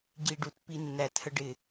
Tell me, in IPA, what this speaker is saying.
ɟi˧ ɖu˨˩tpi˧ nːæ˨˩thə˧ɖɪ˨˩

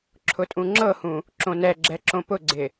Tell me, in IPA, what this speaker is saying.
ǁʰʊtʼũŋ͡ǁɤhũ | ǁõnɛɡ͡ǁɛ ǁõpʊɡ͡ǀɪ

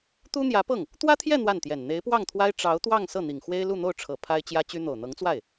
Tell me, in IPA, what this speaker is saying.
t̪u˥n̪jä˧˥pɤ˥˩ŋ | t̪wä˥t̪ʰjɛ˥˧ n̪wa˥˩nt̪jɛ˨˩n n̪e˧˥ɪ̯pwɑ˥˩ŋt̪ʰwa˥ɪ̯ ʈ͡ʂɑ˧˥ʊ̯t̪wɑ˥˧ŋ sɤ˥˩n̪i˨˩ŋxwe˥ɪ̯ lu˥˧n̪o˥˩ʊ̯ʈ͡ʂʰɤ˨˩ pʰa˥ɪ̯t͡ɕjä˥t͡ɕy˥ n̪o˨˩ʊ̯n̪ɤ˧˥ŋt͡swa˥˩ɪ̯

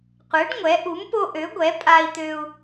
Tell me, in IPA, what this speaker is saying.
qʷɛ˨˥ɖŋʷɛ˨˥ ʔu˨˥mpo˦ʔø˨˥ɡʷɛ˨˥ pʼa˦i̯t̪ø˦u̯

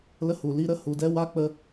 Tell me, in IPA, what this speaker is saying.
lə˦hu˧li˦ ɾə˦ hu˧dɛ˦ wa˦k͡pə˦

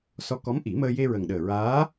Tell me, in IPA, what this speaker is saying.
sɔ˧˥kɔ˧˥m ʔi˨˩˦məː˧ je˧ɹə˨˩ŋ ɗəː˨˩ɹaː˧˥

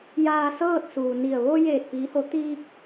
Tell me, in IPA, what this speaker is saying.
jaː˧sɤː˥˨t̚suː˩ni˧˩ə̯ ʋo˧ jeː˧˩t̚piː˩˧ho˩˧ t̪iː˧k̚

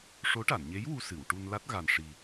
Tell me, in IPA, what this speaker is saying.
ʂo˧˥ʈa˨˩˨nɲe˧˥j wu˧sɨ˨˩˨wʈu˧nla˦˥t̚ ɣa˨˩nʂi˨˩

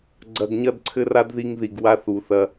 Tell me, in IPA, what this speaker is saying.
ɡ͡ǀɐ˨ɡɲɐ˦dǀʰɘ˦ra˦d ði˦ŋði˨ɡ wa˦θu˨ θɐ˦

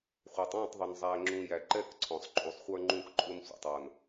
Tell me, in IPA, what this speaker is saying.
χʷə˞˨tˤɔ̃˦˨tˤðˤʊ˨n zˤæ˨ŋ͡ǁũ˨jæ˨ ǃɛ˦kǀʰɔ̃˨sˤ ǃʼu˨sˤχʷə˞˦ ŋ͡ǃũ˦kǃʼʊ˦n sʷɛ̰˨tˤwʌ˨n

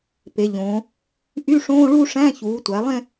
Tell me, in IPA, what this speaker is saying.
pe˩˧ʎõː˩˧ | ʔy˧˥˧ʂõː˧˥˧ɭu˥˧ ʂæ̃˧˥˧çuː˩˧tʷæ˩˧lˠẽ˥˧

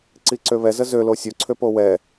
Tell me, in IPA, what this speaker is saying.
ǀiǀøβɛ zəzø losʲo ǀʰøpowɛ

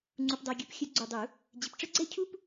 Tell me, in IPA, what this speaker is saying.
ŋ͡ǀu˨pdˤæ˨ɡʲu˨˩˦p xʲə˨˩˦ ɡ͡ǀu˨dˤu˨˩˦ | d͡ʑɪ˨p ʈ͡ʂə˥ɡ͡ǀɛ˥cʰu˥p

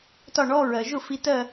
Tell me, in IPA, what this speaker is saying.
tɒ˥˩ɳɔ˧˥˧ ɹɜ˩ʒʊ˥˩ fi˨˦tɜ˥˩

